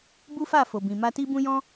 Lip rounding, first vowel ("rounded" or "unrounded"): rounded